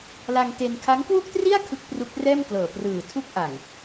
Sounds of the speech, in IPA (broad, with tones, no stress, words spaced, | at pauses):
la˧ŋte˧n kʰa˦˥ŋkwu˥˩k̚tri˥˩a̯ kʰɯ˦˥k̚ pru˦˥k̚rɛː˥˩mklɤː˨˩ prɯː˨˩ tʰu˦˥k̚ʔa˨˩ŋ